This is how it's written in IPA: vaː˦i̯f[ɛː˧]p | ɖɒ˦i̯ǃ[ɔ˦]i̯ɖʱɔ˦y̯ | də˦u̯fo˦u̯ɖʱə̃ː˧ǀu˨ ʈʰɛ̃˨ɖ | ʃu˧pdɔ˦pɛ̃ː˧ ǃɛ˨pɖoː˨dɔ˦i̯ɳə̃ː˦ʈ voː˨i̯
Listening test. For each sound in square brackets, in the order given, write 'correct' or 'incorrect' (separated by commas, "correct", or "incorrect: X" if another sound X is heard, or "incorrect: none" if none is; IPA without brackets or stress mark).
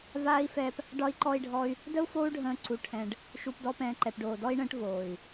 correct, correct